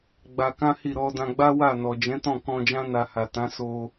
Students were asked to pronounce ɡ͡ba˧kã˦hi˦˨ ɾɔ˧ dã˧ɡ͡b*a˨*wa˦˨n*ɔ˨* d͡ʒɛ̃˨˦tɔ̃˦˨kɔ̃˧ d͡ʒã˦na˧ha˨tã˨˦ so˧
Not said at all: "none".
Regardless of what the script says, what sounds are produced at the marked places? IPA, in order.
a˦, ɔ˨

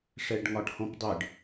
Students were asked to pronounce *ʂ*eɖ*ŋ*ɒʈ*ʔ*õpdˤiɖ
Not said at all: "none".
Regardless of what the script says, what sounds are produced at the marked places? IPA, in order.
ʂ, ŋ, h

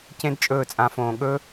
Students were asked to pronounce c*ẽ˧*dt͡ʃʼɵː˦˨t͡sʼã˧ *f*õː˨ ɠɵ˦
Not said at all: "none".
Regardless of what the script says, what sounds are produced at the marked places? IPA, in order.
ẽ˦, f

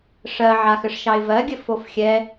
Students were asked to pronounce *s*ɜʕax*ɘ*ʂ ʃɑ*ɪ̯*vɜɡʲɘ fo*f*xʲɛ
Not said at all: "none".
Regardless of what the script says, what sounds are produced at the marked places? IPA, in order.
ʂ, ɘ, ɪ̯, f

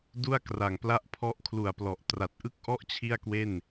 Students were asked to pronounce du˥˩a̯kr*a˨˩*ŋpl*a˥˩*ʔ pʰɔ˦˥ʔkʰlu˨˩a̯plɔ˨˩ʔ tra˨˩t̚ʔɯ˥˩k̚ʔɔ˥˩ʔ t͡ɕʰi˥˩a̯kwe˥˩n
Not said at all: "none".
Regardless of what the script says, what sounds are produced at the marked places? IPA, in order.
a˨˩, a˥˩

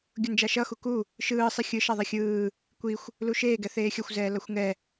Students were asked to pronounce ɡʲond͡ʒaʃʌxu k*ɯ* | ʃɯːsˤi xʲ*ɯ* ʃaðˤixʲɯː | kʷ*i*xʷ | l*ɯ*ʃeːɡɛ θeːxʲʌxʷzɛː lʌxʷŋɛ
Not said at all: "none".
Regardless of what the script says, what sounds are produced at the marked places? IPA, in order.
u, ɯ, i, u

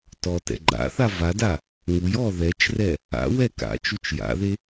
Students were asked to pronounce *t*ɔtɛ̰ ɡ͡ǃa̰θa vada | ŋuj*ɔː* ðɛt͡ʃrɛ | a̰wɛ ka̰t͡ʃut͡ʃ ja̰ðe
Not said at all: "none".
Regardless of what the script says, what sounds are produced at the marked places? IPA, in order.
t, ɔː

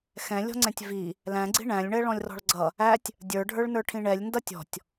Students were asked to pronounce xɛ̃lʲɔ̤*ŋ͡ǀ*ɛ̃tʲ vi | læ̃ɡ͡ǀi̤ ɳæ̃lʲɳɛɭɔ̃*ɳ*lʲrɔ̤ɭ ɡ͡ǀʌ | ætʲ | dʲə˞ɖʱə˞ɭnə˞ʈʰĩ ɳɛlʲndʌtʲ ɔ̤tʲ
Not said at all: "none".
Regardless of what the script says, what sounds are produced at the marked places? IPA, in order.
ŋ͡ǀ, none

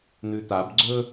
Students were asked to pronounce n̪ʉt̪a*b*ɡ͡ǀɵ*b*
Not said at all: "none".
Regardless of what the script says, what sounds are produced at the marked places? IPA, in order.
b, none

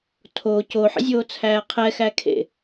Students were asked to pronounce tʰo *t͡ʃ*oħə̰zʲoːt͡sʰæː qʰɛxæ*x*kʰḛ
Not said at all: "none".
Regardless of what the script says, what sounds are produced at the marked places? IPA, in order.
c, none

